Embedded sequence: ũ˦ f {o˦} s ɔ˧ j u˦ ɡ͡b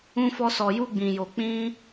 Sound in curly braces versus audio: incorrect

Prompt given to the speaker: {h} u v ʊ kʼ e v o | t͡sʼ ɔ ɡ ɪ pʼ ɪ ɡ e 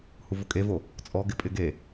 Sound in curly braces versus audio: correct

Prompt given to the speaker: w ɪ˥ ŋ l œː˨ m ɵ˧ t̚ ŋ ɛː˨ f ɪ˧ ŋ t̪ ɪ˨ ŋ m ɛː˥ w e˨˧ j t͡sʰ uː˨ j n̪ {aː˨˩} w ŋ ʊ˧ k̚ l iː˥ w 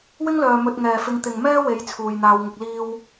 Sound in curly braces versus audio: incorrect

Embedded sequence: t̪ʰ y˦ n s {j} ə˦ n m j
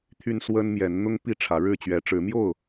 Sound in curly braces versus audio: incorrect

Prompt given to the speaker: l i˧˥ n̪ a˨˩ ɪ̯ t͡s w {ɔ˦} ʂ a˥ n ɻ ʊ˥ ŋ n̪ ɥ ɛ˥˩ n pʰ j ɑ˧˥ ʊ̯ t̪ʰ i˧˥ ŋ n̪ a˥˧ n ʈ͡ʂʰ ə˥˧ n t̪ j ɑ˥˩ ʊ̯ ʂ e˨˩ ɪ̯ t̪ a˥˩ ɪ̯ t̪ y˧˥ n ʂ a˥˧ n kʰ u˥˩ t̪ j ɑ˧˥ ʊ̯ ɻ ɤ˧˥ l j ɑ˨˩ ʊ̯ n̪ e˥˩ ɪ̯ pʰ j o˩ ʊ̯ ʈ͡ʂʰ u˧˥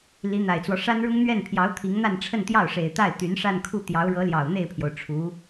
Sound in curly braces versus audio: correct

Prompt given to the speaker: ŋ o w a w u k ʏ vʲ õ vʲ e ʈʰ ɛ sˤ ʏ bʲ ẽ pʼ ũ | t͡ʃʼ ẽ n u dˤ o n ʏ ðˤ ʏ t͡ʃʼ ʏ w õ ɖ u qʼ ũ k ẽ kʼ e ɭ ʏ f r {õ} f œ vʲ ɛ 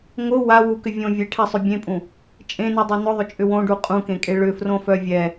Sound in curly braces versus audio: correct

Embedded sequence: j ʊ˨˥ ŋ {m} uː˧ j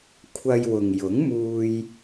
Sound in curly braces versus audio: correct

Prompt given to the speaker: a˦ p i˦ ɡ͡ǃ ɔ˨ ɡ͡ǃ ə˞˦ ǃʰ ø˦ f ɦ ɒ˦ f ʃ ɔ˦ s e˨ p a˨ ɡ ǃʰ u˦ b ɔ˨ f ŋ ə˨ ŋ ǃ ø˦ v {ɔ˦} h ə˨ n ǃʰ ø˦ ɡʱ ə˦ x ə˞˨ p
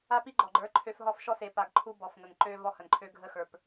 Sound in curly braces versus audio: correct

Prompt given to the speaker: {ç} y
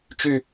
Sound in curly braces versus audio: incorrect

